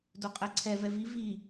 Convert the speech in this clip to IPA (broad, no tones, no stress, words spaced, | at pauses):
doqʼɛǀʰɛv ɛviv i